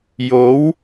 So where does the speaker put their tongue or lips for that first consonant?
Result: palate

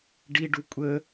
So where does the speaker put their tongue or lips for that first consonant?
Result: retroflex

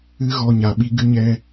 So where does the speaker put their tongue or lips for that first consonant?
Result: velum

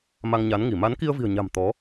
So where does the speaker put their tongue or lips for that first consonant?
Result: lips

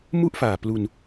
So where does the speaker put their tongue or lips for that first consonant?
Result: lips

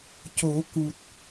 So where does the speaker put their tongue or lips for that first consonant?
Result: palate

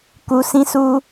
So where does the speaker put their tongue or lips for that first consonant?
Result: velum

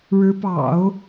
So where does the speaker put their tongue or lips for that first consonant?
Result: retroflex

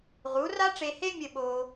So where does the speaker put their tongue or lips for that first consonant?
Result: uvula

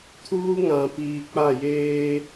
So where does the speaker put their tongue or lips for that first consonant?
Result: tongue tip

